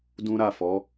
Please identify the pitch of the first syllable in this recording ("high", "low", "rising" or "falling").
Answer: high